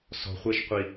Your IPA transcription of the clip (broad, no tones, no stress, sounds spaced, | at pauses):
s ɔ̤ χʷ ɛ ʃ qʷ i